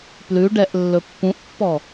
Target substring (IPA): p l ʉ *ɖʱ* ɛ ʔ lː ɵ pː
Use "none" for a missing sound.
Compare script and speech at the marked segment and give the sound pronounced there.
ɖ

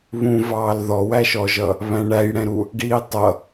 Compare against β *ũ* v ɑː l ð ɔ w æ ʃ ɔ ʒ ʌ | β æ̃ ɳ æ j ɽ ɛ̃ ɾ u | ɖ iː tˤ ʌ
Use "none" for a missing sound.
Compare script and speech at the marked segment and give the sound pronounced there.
ũ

